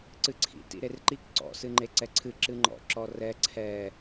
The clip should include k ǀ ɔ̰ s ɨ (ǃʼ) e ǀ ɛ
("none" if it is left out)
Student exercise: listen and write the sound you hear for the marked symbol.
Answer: ŋ͡ǃ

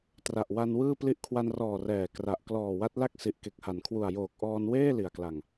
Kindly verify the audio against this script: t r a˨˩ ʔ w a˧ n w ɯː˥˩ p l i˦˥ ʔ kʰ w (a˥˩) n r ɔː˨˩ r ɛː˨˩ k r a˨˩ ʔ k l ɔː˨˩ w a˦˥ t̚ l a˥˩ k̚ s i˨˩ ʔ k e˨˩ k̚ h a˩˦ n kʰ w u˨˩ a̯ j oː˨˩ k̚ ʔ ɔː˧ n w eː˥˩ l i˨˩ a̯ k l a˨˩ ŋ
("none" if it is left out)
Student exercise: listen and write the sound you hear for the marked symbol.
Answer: a˧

